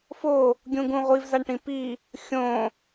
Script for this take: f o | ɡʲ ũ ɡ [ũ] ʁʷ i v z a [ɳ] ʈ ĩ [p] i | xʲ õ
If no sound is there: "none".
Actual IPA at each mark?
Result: ũ, ɳ, p

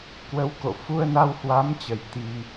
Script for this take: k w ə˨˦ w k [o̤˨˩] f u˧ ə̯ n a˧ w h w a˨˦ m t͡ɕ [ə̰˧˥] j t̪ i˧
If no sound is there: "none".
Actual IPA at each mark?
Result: o̰˧˨, ə˨˩

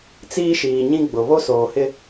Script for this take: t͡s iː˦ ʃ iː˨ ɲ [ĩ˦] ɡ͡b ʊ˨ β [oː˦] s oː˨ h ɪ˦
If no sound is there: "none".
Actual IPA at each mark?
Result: ĩ˦, o˦

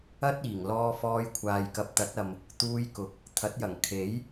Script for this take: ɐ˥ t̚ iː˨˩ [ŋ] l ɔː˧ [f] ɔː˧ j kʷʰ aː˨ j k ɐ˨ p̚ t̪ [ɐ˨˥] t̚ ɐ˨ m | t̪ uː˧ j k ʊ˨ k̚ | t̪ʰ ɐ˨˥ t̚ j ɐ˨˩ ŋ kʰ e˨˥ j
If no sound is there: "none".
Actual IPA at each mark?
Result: ŋ, f, ɐ˨˥

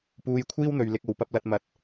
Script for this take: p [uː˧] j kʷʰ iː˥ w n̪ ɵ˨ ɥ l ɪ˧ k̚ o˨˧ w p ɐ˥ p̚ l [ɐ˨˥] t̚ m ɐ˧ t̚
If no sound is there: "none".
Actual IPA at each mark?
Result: uː˧, ɐ˥

